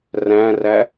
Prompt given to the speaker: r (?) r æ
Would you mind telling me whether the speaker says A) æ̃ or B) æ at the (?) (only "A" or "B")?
A